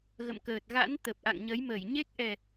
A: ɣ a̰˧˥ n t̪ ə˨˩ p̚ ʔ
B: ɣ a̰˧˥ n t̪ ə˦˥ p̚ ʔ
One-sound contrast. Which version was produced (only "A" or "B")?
A